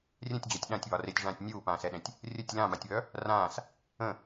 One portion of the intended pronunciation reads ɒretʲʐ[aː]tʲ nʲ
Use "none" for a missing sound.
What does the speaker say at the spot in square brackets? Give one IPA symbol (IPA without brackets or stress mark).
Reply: ãː